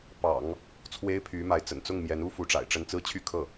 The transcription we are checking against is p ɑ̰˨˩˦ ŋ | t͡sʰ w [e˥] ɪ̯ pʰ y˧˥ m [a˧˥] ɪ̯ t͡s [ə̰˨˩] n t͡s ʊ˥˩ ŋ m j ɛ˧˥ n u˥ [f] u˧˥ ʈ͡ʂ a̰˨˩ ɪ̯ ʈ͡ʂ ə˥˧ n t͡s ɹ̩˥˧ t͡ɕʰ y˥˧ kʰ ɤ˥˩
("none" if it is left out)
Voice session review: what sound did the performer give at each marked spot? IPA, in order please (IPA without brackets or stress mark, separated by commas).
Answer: e˥, a˧˥, ə̰˨˩, f